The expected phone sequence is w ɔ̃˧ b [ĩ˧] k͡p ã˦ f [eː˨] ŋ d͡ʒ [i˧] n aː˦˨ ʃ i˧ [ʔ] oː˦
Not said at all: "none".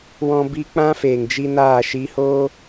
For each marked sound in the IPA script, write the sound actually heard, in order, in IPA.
i˧, eː˨, i˧, h

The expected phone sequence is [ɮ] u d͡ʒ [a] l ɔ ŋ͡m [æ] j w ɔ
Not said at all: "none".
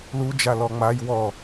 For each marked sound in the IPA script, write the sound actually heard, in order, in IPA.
l, a, a

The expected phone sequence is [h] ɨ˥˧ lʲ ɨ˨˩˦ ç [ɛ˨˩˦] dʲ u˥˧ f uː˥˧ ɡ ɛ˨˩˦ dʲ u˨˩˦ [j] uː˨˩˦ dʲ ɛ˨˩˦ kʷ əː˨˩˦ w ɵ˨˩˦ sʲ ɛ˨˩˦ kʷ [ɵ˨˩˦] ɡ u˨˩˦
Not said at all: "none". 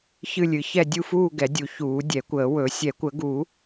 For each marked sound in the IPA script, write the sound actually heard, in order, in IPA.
ç, ɛ˥˧, ç, ə˨˩˦

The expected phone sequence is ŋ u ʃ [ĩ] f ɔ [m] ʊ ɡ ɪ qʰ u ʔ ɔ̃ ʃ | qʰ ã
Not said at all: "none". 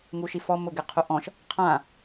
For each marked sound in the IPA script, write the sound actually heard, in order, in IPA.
i, m

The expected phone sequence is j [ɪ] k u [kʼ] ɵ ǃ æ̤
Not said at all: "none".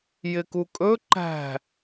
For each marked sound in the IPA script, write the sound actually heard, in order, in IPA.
ɪ, kʼ

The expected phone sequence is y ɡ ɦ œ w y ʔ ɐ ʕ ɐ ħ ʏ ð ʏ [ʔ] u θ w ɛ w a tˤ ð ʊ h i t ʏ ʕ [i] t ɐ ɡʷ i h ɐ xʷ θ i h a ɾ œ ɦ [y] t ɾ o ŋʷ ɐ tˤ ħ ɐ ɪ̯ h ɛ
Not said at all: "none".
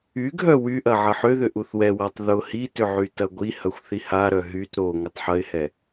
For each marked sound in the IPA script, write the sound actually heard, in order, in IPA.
ʔ, y, y

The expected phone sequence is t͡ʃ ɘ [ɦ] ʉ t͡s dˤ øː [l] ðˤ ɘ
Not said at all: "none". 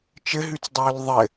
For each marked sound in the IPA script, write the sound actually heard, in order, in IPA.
ɦ, l

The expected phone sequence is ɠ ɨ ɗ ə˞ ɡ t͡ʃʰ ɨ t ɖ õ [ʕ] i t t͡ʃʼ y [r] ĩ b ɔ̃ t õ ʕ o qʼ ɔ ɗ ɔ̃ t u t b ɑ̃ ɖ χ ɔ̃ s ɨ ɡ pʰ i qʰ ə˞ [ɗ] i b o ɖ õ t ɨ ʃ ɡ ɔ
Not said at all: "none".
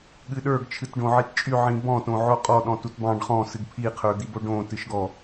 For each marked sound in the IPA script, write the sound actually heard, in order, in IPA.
ʕ, ʕ, d̪

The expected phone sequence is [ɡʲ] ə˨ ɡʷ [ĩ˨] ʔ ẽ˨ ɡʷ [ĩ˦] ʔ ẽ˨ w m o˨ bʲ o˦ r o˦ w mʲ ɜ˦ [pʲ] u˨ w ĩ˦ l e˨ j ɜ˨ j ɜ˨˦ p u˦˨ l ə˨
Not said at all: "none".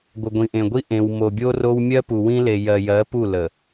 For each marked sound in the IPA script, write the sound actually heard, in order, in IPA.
ɡʷ, ĩ˨, i˦, p

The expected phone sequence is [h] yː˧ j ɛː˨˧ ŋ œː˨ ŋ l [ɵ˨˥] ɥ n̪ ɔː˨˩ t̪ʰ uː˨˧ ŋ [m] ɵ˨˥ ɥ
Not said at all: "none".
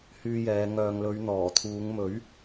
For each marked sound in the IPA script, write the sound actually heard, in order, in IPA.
h, ɵ˨˧, m

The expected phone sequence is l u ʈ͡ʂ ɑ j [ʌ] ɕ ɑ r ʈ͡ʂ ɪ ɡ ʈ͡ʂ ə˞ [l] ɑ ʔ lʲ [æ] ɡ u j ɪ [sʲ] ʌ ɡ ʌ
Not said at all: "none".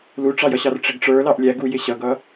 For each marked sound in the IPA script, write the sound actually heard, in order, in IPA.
ʌ, l, æ, ɕ

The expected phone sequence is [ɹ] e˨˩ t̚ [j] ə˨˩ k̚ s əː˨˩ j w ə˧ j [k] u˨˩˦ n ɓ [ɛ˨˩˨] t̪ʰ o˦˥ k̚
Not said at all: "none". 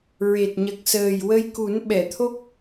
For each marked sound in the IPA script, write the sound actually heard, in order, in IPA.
ɹ, ɲ, k, ɛ˨˩˨

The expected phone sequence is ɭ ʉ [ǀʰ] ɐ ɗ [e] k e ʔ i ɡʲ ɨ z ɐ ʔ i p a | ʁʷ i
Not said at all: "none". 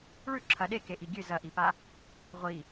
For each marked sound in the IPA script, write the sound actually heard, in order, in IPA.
ǁʰ, e

